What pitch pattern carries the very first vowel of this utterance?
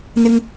high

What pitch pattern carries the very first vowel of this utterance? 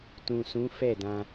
low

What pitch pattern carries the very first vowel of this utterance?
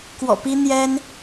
low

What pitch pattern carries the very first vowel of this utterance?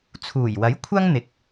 low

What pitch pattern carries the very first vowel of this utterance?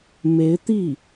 rising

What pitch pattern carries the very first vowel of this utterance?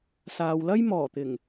low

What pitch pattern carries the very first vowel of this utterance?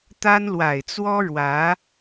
high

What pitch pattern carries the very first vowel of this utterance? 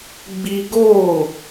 high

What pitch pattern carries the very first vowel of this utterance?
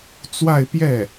falling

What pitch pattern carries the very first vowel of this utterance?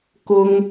high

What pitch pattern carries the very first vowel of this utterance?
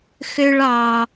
high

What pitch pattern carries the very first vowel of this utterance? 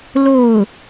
falling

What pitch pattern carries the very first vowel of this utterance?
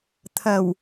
low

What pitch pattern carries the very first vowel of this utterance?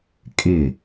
falling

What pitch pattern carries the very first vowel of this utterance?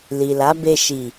low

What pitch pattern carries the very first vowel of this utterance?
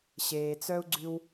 low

